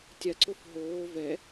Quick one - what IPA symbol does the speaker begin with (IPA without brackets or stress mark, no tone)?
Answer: tʲ